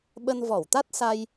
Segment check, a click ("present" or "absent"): absent